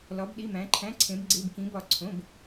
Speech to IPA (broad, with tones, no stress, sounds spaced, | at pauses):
l ɒ˧˥ b ɗ i˧˥˧ m æ̃˧˥ ǃʰ æ̃˧˥˧ ǀʰ ẽ˧˥ b ɡ͡ǀ e˧˥˧ b k ĩ˧˥ b ɒ˦˨ ǀʰ õ˧˥˧ b